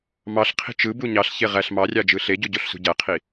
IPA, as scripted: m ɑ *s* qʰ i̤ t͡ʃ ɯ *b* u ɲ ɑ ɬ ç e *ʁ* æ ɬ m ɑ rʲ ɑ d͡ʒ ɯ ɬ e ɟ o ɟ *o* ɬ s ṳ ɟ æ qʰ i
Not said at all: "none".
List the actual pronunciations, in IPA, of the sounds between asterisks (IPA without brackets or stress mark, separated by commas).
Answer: ɬ, b, ʁ, o